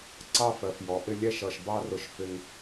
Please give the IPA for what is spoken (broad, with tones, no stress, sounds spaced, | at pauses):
ǀ ɑ˥˧ f ɜ˩˧ f j ɔ˩˧ ʔ ɪ˥˧ lʲ ɛ˥˧ ʃ ʌ˧˩ ʃ b ɑ˥ r ʊ˧ ʃ f ɪ˧ ŋ